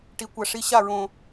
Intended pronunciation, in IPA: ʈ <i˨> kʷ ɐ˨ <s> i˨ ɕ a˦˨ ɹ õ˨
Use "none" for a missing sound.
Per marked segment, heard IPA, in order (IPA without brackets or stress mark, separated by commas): i˨, ʂ